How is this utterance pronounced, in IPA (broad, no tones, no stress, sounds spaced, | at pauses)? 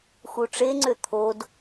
x u ʈ͡ʂ e ŋ͡ǀ ø t̪ʰ o d